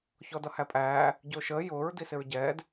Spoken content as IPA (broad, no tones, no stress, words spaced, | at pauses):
çɔdʌhæpʼæː | ɟʊːʃəː jʊːɹ disɪɹɟɛːd